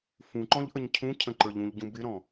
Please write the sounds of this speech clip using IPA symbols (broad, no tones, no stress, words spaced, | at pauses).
fũǃɔ̃ʎ ʔəɲcʰũcʰə̃ ǃə˞ʎũʎɟũ bɪɾɔ̃